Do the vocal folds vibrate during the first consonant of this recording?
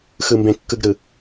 no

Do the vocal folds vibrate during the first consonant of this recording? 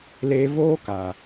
yes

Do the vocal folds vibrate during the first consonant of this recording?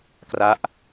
no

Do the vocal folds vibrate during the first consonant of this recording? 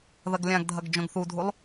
yes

